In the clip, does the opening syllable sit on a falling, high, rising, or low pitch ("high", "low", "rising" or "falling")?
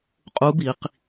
rising